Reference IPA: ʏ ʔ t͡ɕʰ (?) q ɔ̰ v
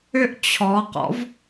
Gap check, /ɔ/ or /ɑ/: ɔ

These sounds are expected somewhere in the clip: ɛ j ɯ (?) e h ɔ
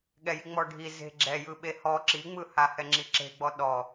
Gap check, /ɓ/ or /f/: ɓ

